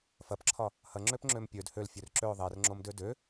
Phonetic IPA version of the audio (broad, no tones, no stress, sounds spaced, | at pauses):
f ɐ p ǁʰ ɒ | h ɐ ŋ͡ǁ ø p ŋ͡ǁ ø m pʲ ø d h ø l fʲ ø r ǁ ø ʊ̯ ðˤ ɛ r ŋ͡ǁ o m d ø d ø